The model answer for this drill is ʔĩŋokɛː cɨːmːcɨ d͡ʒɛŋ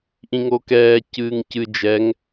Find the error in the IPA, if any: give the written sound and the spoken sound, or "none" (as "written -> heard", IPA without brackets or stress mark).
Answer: mː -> ŋ